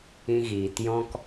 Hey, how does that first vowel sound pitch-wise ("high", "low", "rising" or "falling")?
high